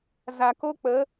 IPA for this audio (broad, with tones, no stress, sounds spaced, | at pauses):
z a˨ k o˦ k͡p ə˨˦